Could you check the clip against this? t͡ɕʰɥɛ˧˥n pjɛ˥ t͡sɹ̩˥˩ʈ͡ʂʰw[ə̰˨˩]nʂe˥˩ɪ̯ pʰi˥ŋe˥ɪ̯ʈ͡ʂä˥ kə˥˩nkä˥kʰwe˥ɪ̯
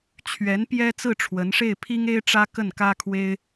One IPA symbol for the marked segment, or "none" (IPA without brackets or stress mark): ə˧˥